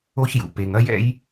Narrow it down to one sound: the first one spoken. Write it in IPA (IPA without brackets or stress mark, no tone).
o